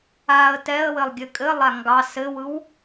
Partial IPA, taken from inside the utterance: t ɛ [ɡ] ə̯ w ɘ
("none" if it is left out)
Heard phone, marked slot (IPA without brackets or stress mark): none